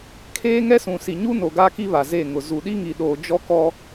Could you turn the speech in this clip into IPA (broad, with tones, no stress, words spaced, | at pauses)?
kʰeː˦ŋɛ˦sũ˨ si˨ɲu˦ no˨ɡaː˦ki˦ βa˨ze˦˨ŋʊ˨ zu˨ɗi˦ŋi˨ɗoː˨ d͡ʒɔ˦kɔ˦